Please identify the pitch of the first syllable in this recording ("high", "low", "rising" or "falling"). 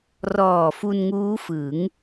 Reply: low